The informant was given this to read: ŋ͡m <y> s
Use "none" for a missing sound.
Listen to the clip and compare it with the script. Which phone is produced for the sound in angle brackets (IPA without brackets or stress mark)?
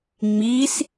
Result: i